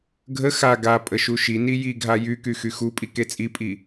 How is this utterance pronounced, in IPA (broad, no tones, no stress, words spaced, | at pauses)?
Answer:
ɡʱə xa ɡa pʼəʃuʃini jiɡʱa jyky xyxupʼi ket͡sʼipʼi